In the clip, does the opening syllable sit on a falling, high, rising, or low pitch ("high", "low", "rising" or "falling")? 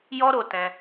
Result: high